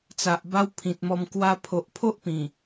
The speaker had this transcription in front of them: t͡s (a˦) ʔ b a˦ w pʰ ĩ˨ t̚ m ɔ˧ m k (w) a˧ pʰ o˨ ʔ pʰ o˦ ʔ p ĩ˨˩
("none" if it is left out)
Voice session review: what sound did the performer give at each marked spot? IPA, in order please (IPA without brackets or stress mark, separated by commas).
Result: a˨, w